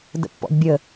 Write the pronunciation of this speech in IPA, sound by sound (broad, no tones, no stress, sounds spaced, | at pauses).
d ə̰ pː ɔ̰ d bʲ ə